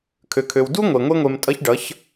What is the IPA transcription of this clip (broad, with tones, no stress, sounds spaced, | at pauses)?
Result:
kʰ ø˨ kʰ ø˨ w d u˦ ŋʷ e˨ ŋʷ e˦ ŋʷ e˧ m tʼ ʌ˦ ç ɖ ʌ˨˦ ç